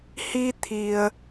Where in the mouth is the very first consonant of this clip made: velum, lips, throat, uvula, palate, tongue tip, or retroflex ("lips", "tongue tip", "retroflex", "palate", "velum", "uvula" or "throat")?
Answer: throat